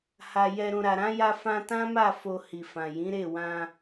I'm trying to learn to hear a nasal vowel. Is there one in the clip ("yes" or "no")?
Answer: yes